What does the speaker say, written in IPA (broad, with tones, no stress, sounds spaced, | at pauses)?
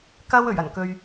k ɐ˧ w ɵ˨˩ ɥ ɐ˨˩ n k ɵ˨ ɥ